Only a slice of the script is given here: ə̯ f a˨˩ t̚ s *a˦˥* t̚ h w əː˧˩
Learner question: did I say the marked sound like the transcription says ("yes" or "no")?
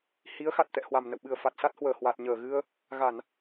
yes